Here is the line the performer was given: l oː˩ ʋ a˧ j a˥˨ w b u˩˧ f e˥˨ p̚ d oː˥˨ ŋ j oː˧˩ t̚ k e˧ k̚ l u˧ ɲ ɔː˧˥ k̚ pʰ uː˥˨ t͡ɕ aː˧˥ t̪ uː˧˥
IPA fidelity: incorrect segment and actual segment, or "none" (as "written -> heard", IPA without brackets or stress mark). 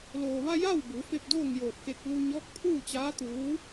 none